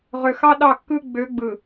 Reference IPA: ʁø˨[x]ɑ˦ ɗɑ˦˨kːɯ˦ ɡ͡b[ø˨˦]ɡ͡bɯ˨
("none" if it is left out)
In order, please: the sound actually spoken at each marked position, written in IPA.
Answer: x, ø˨˦

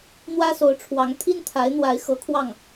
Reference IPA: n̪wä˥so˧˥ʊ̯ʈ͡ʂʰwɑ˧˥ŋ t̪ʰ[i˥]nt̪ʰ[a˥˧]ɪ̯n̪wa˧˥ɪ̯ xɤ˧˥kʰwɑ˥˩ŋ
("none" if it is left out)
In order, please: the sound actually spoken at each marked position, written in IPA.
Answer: i˥, a˧˥

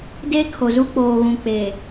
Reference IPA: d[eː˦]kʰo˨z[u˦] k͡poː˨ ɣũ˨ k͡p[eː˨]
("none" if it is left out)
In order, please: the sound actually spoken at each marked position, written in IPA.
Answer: eː˦, u˦, eː˨

